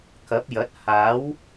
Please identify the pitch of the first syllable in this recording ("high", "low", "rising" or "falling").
rising